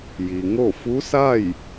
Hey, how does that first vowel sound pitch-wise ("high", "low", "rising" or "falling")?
low